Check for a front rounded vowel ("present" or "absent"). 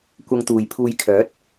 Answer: present